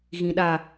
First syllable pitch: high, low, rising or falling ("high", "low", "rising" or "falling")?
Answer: low